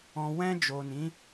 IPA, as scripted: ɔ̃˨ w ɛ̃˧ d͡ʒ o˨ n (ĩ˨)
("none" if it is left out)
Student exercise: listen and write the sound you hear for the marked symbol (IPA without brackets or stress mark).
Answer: ĩ˨˦